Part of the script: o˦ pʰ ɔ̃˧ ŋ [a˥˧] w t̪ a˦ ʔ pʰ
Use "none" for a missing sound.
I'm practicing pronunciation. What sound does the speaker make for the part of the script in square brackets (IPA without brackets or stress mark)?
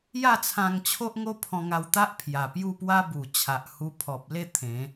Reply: a˧